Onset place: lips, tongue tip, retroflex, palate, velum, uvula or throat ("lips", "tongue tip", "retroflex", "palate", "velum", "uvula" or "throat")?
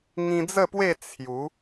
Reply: velum